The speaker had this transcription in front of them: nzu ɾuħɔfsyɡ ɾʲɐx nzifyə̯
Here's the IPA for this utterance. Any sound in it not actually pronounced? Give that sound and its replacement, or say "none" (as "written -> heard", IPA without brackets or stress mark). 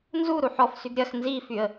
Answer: none